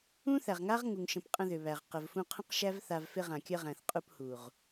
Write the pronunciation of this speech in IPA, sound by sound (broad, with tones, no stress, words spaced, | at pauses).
ũ˦θæ˨ʁŋa˦ʁ ŋu˨ŋʃə̃˨p qʼə̃˧ðʏ˨βæ˨ʁ qə˨vfũ˧qʰə̃˦q ʃæ˦vθa˧v fɪ˧ʁã˨kʲə˧ʁæ̃˨θ qʼu˧phu˨ʁ